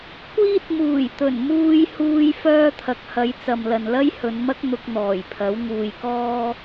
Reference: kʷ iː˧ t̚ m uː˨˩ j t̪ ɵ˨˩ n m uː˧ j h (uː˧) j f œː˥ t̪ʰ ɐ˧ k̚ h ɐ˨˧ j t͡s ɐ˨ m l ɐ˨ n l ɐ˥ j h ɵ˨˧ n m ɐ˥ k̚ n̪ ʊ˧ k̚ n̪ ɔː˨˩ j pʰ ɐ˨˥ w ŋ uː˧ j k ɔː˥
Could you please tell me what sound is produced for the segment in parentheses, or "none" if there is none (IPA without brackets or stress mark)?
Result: uː˧